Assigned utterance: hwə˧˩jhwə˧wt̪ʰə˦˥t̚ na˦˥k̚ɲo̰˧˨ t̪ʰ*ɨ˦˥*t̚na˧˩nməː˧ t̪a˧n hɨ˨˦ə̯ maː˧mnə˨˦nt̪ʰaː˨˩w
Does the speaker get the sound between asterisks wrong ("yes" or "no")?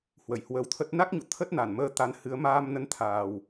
yes